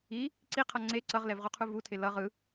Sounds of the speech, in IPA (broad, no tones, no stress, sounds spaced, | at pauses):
i | ǀ i qʰ ʌ ŋ͡ǀ e ǀ ʌ ʁ l ɛ v ʁ u qʰ u v u tʰ e l ʌ ʁ ɯ